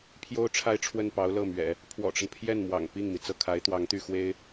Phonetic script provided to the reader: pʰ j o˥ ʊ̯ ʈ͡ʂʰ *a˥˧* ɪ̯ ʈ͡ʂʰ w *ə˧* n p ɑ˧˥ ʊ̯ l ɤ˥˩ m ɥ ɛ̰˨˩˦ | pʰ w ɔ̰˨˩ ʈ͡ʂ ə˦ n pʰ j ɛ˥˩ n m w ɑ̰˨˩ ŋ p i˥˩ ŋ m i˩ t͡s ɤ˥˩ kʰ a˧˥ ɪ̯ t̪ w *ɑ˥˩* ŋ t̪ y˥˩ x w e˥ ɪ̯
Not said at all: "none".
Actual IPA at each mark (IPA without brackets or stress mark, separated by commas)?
a˥˧, ə˥˩, ɑ˧˥